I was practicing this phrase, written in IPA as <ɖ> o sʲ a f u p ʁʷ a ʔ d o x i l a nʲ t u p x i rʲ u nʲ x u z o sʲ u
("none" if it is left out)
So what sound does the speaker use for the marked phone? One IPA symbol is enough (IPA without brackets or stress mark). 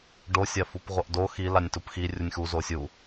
ɖ